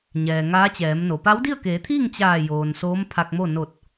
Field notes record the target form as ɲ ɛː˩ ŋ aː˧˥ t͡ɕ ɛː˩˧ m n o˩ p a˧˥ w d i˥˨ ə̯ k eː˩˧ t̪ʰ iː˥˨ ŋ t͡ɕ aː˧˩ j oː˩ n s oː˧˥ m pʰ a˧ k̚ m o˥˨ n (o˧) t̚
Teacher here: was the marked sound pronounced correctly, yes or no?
no